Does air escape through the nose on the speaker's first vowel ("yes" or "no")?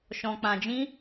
yes